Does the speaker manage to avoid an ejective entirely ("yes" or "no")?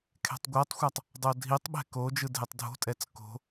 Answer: no